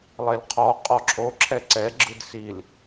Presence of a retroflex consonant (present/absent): absent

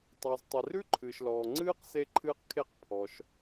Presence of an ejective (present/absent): absent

